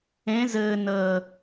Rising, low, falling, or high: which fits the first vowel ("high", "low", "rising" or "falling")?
rising